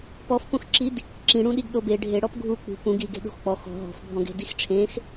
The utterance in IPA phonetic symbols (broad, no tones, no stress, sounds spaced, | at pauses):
p ɔ f p õ x ǁ i d | ǁ ĩ ɽ ũ ɗ i ɡ ɗ o b e ɖʱ e ɽ ɔ p ɡʱ u k͡p ṳ p ũ ɡ i ɡ e̤ ɗ o̤ x k͡p ɔ x ɔ̤ ɦ ɔ̤ f bʱ ɔ̃ ɡ e̤ d i x ʈ͡ʂʰ ẽ x